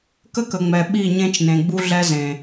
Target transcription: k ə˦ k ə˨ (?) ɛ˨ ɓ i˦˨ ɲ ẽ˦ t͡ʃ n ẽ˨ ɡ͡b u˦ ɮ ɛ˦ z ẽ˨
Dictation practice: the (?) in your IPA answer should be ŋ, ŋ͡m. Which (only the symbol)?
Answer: ŋ͡m